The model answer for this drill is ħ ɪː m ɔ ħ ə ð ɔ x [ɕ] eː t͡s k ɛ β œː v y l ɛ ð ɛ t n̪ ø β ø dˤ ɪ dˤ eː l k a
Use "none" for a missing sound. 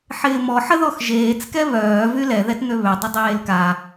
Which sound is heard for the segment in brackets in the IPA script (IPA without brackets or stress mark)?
ʒ